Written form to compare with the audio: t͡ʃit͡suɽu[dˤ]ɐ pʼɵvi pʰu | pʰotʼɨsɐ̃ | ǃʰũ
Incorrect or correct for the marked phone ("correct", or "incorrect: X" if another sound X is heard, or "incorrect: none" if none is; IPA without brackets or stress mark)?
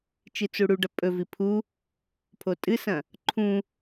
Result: incorrect: ɖ